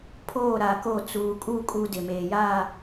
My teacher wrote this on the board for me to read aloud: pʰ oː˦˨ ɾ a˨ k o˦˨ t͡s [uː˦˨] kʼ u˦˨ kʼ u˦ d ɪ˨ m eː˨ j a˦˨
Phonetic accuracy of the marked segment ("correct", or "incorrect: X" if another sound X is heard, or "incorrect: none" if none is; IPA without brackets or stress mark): incorrect: uː˨